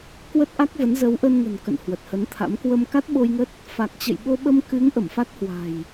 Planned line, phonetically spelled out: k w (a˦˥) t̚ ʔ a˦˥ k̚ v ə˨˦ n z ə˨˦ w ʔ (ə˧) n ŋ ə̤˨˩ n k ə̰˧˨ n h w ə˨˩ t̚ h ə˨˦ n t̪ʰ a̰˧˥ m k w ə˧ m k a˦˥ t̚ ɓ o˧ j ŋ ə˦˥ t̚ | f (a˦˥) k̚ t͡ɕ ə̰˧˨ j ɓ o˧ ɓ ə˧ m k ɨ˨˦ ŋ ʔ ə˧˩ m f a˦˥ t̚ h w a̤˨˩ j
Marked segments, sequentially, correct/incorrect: incorrect: ə˦˥, correct, incorrect: a˨˩

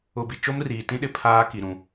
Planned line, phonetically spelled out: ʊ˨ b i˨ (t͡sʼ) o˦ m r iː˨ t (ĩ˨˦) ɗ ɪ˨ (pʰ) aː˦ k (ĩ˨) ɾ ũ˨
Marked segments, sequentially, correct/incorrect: incorrect: t͡ʃ, incorrect: ĩ˦, correct, incorrect: i˨

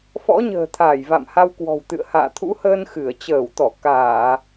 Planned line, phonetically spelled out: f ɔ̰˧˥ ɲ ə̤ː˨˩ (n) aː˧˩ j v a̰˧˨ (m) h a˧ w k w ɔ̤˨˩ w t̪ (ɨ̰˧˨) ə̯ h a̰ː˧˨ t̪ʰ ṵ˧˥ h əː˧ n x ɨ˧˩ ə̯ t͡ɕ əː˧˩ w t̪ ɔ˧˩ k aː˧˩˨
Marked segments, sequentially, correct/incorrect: incorrect: t̪ʰ, correct, correct

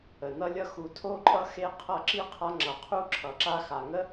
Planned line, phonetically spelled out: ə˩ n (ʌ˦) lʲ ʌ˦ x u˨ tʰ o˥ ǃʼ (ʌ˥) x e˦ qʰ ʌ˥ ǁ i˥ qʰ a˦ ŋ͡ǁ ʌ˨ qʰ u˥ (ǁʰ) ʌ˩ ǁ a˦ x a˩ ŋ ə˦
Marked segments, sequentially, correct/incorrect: correct, correct, correct

